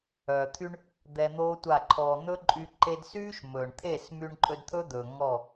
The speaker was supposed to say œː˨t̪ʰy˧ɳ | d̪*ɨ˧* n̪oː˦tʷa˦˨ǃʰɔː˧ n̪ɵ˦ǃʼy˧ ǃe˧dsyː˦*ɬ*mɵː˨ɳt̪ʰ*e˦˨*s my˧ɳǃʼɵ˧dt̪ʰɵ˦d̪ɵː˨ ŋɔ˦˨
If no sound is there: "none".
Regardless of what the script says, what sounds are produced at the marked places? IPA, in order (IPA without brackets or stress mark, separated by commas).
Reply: ɛ˧, ʃ, e˦˨